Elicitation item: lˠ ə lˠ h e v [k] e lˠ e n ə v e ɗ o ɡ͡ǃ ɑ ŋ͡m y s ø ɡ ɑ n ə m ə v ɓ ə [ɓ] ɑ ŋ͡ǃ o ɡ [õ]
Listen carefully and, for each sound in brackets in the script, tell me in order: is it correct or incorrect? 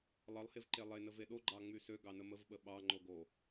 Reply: incorrect, correct, incorrect

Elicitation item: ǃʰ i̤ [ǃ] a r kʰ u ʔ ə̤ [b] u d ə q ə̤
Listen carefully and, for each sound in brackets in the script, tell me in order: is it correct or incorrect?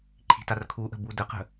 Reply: incorrect, correct

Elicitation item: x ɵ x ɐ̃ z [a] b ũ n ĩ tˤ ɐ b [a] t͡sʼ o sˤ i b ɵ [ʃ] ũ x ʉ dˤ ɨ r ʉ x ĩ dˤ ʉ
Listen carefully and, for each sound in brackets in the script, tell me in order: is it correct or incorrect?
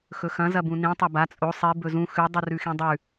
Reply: incorrect, correct, incorrect

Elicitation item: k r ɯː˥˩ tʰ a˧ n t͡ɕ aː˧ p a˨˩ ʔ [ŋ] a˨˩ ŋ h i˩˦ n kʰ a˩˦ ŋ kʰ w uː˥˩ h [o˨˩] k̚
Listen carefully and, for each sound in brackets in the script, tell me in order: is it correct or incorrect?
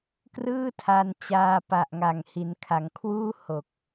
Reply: correct, correct

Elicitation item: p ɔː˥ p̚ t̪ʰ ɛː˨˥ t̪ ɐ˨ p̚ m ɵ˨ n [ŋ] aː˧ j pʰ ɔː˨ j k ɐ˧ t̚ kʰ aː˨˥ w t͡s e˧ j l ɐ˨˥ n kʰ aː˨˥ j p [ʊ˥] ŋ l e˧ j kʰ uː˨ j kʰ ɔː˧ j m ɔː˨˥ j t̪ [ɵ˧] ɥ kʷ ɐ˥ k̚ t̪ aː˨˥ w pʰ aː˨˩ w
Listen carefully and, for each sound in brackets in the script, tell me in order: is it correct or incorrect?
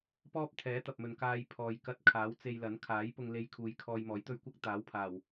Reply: incorrect, incorrect, correct

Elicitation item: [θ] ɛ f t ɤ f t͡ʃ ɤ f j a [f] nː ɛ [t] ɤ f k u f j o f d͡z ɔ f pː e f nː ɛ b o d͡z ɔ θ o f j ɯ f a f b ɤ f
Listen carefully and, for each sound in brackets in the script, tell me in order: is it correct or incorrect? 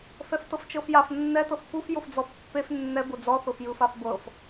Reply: incorrect, correct, correct

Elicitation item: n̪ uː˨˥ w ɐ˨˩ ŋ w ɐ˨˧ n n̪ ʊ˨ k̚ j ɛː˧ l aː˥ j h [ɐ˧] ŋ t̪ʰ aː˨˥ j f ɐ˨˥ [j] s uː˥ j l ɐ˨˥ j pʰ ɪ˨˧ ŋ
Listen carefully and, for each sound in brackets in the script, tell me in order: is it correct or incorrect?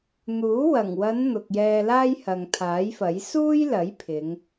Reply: incorrect, correct

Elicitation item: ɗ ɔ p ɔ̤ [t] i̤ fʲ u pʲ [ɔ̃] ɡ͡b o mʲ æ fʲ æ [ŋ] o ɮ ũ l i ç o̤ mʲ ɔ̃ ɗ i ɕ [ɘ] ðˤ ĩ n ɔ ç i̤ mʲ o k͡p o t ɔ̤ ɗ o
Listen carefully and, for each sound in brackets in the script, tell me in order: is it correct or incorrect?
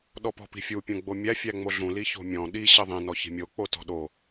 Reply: incorrect, incorrect, incorrect, correct

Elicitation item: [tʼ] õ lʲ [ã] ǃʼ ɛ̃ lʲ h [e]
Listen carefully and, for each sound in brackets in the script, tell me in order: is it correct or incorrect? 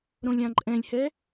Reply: incorrect, correct, incorrect

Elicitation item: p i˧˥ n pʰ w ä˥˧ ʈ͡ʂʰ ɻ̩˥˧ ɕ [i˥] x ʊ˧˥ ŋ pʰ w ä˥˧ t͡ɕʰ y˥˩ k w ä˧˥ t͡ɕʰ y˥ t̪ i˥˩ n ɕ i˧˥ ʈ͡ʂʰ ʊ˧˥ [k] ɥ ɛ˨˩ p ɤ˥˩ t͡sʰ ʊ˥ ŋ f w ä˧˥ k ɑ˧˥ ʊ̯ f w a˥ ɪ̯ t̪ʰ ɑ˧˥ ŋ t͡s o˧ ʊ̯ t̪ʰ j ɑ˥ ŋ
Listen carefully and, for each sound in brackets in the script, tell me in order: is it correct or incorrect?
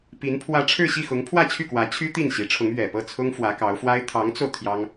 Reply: incorrect, incorrect

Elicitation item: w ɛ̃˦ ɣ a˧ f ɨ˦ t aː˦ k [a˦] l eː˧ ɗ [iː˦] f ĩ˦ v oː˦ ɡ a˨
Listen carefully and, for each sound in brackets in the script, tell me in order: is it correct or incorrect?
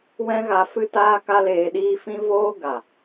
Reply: correct, correct

